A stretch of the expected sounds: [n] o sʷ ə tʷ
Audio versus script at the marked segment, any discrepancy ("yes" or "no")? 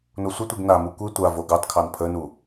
no